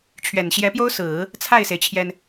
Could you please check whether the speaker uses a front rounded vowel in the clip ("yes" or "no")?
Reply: no